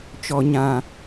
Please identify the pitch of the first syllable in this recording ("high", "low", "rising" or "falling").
low